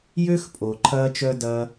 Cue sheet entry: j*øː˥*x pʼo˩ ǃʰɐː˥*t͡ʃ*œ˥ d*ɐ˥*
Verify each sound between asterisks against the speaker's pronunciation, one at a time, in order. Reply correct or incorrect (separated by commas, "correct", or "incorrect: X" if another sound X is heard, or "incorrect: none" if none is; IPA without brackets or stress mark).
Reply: incorrect: ø˥, correct, incorrect: ɐː˥